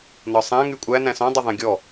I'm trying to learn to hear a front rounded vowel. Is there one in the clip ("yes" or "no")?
yes